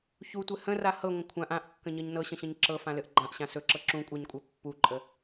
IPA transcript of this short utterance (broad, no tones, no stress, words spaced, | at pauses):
çutʷɘ hə̃ra hɤŋʷə̃ kʷʰãʔ ãʔkːə̃ɲɤɲ nɤɕə̃ɕə̃ɲ ǁɤfãlɘʔ ɡ͡ǃãʔɕã sɵǁɤ ǁũkʷʼaɲkʷʼa pːuǃʼə